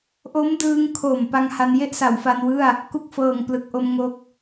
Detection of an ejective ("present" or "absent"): absent